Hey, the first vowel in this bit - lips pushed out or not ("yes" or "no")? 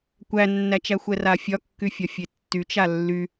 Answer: no